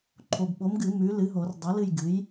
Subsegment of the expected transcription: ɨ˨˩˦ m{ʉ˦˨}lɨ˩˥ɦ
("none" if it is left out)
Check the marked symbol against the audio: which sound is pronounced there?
ʉ˩˥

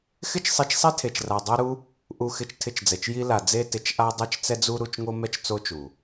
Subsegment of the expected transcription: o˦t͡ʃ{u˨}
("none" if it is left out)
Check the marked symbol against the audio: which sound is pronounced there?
u˨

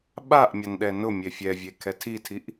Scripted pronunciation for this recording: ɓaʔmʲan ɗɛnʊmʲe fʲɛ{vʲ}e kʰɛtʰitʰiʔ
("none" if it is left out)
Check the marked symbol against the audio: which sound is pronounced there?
vʲ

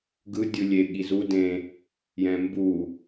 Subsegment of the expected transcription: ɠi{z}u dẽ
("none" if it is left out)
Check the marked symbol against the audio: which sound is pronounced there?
z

